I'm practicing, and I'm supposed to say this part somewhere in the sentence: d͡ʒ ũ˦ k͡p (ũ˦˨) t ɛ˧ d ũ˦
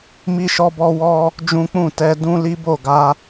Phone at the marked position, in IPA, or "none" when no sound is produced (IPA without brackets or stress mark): ũ˦˨